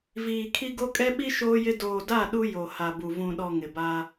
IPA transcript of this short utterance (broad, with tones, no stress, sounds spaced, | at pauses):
v iː˨ kʰ i˦ ɡ o˦ kʼ ɛ˦ ɓ i˦ ʃ oː˦ j ɪ˦ d oː˨ d a˦˨ ɗ u˦ j o˨ h a˨ b u˨ v ũ˨ ɗ ɔ˨ ŋ ɪ˨ b a˦